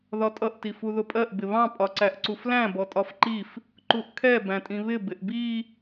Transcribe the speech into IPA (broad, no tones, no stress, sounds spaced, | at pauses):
ð ɒ tʼ ʌ ʔ t i f u ð ʊ pʼ ɜ ʔ b ɪ β ɑ̃ pʼ ɒ ǀ æ ʔ ǀ u f l æ̃ b ɔ tʼ ɒ f ǃ i f | ǃ u ʔ kʰ ɛ b æ̃ tʼ ĩ β ɪ b ɪ ʔ b i